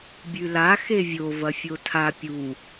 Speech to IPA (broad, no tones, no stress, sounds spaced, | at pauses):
bʲ ʉ l a x e vʲ o v ɐ fʲ o tʰ a pʲ u